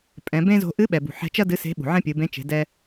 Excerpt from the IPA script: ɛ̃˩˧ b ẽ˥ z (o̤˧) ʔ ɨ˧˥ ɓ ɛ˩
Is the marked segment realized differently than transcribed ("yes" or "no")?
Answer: no